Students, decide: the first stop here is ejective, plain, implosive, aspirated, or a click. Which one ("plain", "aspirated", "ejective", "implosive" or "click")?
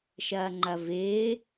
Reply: click